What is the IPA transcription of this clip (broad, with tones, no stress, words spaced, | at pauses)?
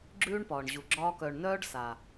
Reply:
ɡ͡ǁʉː˦ɳpɒː˨ɳʑu˨ ɡ͡ǁɒː˧kœ˨ɳ nœː˦ɖ sa˨